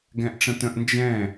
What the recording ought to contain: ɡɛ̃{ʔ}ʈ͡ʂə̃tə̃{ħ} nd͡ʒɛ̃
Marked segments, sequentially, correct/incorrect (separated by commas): correct, incorrect